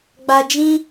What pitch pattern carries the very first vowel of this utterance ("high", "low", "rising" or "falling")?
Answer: low